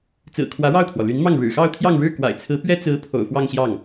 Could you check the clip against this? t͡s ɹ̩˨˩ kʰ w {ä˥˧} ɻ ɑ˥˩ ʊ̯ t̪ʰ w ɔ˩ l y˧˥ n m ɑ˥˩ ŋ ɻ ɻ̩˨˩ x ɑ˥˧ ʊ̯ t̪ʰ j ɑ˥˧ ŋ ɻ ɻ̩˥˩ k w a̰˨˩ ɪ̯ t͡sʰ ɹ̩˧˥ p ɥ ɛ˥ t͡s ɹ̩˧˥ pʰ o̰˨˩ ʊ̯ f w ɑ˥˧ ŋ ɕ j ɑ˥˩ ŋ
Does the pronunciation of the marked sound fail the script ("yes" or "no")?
yes